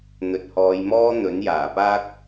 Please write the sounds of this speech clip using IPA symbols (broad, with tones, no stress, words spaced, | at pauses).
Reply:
n̪ɵ˨t̚hɔː˨˧jmɔː˥ n̪ɵ˨˥njaː˨˩paː˥k̚